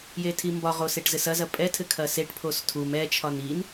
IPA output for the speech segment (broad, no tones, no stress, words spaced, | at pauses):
jetʰimbɒʁo seʈzɘsɐzɐ pʼɛtʰɘ kʰɐseʈpʰos tʰum ɛt͡ʃʰɒn in